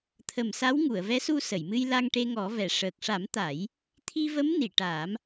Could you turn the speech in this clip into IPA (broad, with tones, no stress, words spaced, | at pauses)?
t̪ʰə˨˩msa˧˥wŋu˨˩˨ə̯ vɛ˧˥su˧sə˨˩˨jmɨ˧j la˧ŋʈe˧ŋɔ˨˩˦vɛ˨˩˨ ʂəː˨˩k̚ʂa˨˩˦m t̪a˨˩˦j | t̪ʰi˧və˧˥m ni˨˩˨ʈaː˨˩˦m